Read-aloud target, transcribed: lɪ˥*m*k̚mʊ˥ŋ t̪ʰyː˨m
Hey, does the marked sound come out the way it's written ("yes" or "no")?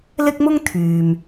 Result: no